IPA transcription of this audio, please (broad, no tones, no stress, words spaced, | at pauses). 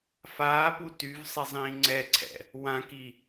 faːpu tyvsˤizˤĩː ŋ͡ǀɛǀʰɛ̰ | wãki